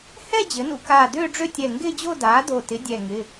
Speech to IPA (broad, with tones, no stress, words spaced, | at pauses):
hɛ˥˧ d͡ʑɘ˩˥nṵ˥˧ kaː˧˩ dʏː˥˧ɖ͡ʐʏ˥˧tʲɛ˧˩ ŋɡɪː˥˧d͡ʑo˥˧daː˩˥ do˧˩tɪ˩˥ dʲɛ˧˩ŋɪ˩˧˩